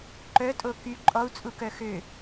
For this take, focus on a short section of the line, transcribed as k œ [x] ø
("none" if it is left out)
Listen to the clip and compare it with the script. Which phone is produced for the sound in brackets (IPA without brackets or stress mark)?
x